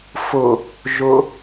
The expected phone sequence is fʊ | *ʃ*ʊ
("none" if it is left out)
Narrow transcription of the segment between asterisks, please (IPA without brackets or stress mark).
ʒ